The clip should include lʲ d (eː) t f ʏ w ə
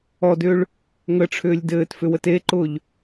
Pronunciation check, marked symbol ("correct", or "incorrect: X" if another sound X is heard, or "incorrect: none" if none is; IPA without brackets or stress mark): incorrect: ɘː